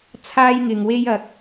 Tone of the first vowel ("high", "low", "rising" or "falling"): high